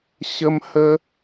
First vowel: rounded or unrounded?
unrounded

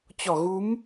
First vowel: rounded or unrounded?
rounded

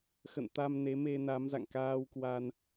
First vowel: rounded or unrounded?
unrounded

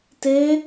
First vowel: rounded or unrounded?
unrounded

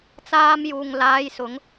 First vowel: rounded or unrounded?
unrounded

